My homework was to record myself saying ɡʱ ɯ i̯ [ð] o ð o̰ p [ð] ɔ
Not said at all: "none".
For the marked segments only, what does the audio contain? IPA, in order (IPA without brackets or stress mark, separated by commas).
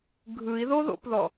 ð, ð